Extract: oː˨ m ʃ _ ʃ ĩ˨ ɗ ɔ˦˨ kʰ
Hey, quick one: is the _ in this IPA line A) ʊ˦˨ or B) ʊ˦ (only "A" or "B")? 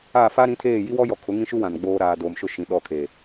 A